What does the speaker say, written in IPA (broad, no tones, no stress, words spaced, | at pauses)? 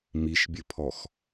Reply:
miʃbʲɘpʰɔx